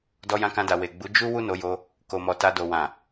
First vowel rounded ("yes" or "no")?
yes